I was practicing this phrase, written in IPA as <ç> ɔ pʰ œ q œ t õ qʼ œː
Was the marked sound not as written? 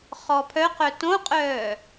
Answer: yes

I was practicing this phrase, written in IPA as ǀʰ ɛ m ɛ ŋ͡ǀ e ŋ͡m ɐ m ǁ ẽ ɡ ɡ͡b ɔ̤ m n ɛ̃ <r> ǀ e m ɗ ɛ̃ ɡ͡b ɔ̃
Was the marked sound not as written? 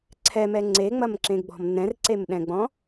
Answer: no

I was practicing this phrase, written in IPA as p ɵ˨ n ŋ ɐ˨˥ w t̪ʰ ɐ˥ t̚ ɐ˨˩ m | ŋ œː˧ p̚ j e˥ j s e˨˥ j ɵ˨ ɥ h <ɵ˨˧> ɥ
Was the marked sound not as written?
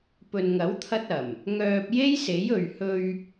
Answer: yes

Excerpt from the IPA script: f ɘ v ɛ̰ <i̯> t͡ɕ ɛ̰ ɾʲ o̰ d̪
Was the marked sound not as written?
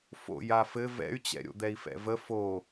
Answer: yes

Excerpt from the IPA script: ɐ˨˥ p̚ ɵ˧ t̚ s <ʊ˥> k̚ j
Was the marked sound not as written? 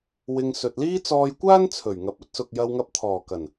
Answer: yes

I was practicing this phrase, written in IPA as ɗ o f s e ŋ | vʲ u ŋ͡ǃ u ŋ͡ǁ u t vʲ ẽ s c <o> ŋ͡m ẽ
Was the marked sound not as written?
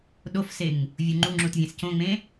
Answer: yes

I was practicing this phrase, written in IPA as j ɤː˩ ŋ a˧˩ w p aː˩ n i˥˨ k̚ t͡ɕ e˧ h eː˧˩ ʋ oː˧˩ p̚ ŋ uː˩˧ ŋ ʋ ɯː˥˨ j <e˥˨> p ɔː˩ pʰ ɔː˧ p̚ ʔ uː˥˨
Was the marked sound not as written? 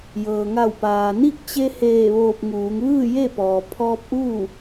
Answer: no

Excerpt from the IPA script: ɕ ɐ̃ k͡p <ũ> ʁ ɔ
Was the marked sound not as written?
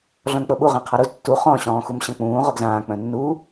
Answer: yes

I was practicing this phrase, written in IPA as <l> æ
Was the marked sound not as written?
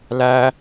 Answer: no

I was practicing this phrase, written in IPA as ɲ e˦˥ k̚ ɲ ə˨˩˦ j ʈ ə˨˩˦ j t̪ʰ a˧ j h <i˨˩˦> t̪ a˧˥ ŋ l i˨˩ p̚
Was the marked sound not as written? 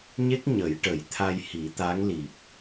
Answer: no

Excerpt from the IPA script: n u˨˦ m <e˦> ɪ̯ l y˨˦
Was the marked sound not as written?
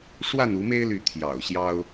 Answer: no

